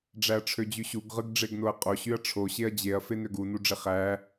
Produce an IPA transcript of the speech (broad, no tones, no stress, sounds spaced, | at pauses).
ɖ͡ʐ æ ɐ̯ ʈ͡ʂʰ ø d͡ʑ y ɕ u ɡ ʁ ɯ ɡ ɖ͡ʐ e ɡ n o ɐ̯ qʼ o ɕ y ɐ̯ ʈ͡ʂʰ o ɕ e ɐ̯ d͡ʑ e ɐ̯ f e n ø ɡ u n u ɖ͡ʐ e χ æ